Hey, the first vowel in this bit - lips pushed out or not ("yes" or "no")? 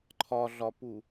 yes